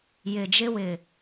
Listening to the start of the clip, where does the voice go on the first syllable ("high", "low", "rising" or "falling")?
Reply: low